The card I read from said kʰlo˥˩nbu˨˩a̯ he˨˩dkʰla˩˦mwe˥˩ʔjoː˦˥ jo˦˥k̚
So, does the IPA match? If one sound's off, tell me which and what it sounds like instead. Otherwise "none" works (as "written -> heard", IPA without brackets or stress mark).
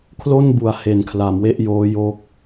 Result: d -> n